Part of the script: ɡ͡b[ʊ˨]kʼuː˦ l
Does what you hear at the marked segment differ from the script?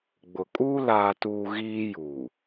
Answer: no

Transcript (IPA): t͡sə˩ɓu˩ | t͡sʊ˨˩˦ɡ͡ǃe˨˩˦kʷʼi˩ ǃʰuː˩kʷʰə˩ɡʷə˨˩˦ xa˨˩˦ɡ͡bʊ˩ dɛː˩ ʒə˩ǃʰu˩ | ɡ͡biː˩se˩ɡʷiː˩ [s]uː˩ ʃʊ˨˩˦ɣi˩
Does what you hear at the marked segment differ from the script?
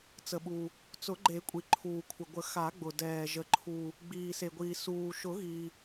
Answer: no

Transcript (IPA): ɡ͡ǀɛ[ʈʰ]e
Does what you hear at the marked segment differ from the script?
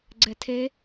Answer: yes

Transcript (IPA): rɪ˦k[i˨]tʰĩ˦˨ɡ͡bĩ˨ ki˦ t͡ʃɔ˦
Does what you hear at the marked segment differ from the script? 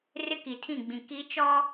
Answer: no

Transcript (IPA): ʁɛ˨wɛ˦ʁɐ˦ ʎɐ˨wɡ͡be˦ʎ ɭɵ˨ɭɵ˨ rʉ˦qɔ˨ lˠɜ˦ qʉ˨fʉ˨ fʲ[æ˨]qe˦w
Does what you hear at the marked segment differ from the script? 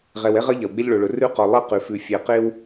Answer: yes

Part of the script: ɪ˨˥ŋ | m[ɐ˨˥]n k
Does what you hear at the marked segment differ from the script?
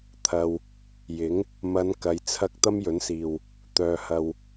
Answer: yes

